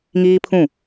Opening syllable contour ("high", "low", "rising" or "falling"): high